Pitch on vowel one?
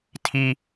high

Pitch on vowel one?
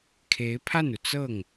rising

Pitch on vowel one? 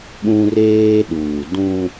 high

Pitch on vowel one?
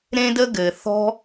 high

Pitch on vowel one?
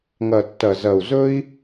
low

